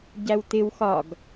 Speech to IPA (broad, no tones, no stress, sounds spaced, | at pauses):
ɟ æ w t ɪ w x ɒ ɡ